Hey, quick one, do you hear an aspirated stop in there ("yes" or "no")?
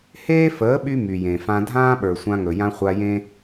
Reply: no